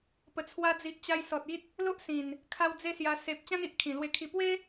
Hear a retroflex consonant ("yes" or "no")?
no